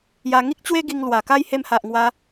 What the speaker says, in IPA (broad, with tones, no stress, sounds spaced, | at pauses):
j a˧ ŋ i˦ k̚ t͡ɕ w e˦ ɡ i˧ ŋ l w a˨˩ k a˦ j h e˧ m h a˨ ʔ ŋ w a˧